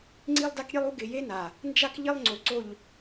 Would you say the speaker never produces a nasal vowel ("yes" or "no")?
yes